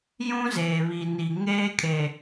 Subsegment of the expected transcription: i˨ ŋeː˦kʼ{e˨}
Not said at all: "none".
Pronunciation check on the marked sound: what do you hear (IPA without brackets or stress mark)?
e˨